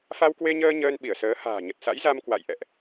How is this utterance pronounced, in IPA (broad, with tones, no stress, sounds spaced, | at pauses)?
f a˧ w k w e˧ ɲ əː˧ ɲ əː˧ n ɓ i˧˩ ə̯ s əː˨˦ h a̤ː˨˩ ɲ ə˨˩ t̚ s a̰˧˥ j z a˧ m k w a̰˧˨ j ʔ ɛ̰˧˨ ʔ